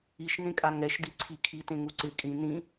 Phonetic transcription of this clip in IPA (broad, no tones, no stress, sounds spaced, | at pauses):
i ʃ ŋ ẽ kʼ a ŋ ɛ ʃ d i ǀʰ i kʰ i t ẽ ŋ u ǀ ɪ kʼ ĩ n ĩ